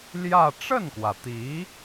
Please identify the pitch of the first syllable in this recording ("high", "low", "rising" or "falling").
falling